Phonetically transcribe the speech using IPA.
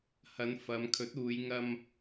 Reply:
h ɐ˨˧ n f ɐ˨˧ m kʰ ɵ˨˥ t̚ uː˨˧ j ŋ ɐ˧ m

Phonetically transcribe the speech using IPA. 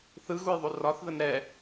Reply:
θ ɯ ɣ u j ðˤ u r ɒ θ ð ə n ɾ ɛ

